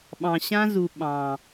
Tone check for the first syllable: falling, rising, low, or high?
low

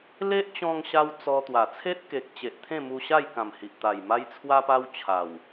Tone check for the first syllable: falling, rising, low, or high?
high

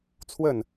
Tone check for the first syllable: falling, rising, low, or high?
falling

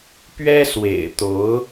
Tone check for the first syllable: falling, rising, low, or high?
high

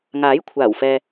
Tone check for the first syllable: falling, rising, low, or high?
rising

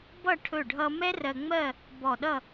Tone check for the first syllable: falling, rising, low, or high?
falling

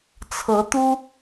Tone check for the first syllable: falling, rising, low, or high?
rising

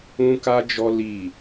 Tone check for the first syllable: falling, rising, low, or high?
high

